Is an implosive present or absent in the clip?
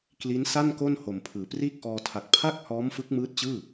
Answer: absent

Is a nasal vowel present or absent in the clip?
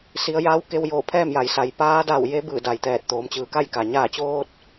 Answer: absent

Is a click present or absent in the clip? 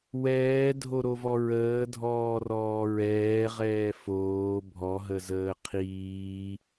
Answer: absent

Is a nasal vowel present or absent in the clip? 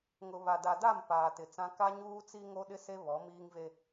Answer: present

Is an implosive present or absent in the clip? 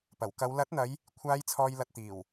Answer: absent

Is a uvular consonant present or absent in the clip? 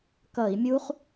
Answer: present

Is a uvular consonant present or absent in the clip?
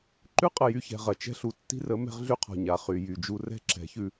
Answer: present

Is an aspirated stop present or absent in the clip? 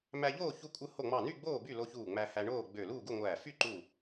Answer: absent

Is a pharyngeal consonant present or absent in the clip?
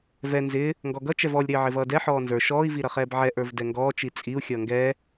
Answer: present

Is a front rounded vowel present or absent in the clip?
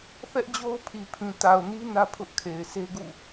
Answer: absent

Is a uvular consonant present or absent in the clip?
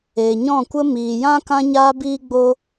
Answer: absent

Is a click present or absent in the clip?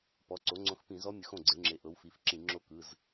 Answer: present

